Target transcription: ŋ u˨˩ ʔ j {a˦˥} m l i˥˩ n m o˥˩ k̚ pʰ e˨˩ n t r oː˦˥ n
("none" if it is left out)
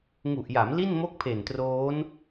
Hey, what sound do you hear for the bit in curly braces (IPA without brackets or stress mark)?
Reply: a˩˦